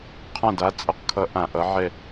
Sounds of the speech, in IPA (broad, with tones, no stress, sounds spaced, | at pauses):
qʰ ã˦˨ d a˨˦ t͡sʼ ʌ˨˦ q kʰ ʌ˨˦ ʔ ã˨˩ ʔ ʌ˨˦ ʕ ɛ˦˨